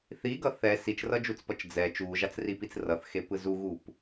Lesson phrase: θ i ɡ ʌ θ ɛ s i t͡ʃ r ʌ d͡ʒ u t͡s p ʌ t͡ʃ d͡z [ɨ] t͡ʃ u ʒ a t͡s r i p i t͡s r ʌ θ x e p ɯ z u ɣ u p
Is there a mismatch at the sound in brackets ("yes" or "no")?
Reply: yes